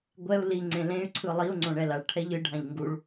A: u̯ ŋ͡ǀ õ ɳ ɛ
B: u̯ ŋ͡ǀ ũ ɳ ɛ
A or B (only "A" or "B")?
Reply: A